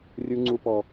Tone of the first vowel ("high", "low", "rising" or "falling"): high